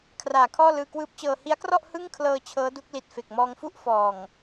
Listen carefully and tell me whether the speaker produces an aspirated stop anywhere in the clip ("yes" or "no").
yes